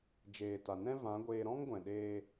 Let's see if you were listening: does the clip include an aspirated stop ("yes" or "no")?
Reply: no